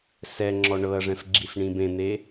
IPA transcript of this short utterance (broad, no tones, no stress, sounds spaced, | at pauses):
s ɛ ŋ͡ǁ ɔ ɳ ɤ ɐ̯ ʐ ɛ̃ f ɡ͡ǁ i s ɳ ĩ b ẽ n̪ e